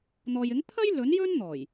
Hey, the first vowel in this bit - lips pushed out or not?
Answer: yes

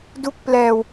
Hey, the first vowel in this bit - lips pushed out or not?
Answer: yes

